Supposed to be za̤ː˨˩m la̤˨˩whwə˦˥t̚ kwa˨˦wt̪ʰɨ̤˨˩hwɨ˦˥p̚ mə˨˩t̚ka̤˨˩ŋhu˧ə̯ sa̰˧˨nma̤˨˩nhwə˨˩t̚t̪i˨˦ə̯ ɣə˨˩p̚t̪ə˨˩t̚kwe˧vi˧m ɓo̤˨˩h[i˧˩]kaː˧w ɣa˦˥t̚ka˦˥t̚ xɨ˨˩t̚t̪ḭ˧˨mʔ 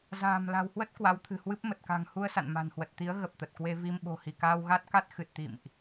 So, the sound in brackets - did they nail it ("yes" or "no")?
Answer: yes